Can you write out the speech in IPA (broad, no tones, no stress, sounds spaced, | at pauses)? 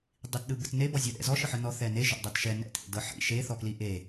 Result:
dˤ i t ɗ ɯ b ɯ t n e b ɔ zʲ ɤ ɗ ɛ̰ z ɔ ʃ ɯ ħ ɯ n ɔ θ ɛ n e ʒ ɔ̰ dˤ ɤ t ʃ ɛ n ɛ̰ t ʔ ḛ d ɤ ħ ḭ ʃ e θ ɔ k l i ʔ e